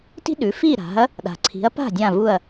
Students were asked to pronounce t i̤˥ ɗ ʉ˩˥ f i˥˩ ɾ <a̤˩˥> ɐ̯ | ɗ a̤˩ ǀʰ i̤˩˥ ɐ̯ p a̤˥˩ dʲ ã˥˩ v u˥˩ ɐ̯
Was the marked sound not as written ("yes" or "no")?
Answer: no